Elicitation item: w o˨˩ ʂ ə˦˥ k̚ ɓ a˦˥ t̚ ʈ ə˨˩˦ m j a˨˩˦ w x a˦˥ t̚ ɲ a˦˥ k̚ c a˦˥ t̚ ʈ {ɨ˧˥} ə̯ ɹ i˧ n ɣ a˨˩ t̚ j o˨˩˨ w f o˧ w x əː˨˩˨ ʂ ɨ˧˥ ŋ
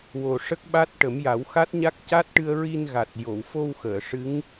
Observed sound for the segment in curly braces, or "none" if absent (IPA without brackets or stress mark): ɨ˧